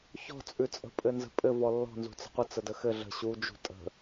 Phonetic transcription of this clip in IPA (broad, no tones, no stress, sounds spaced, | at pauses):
ç ɔ̤ t͡sʼ ʉ t͡sʼ ə̤ pʼ ɘ n z ə̤ pʼ ɘ v ɔ lː ɔ̤ n z ṳ t͡s ə̤ qʷ ə t͡s ə d ə x ɘ ɮ ə̤ ɕ u d͡ʒ ṳ tʼ ə̤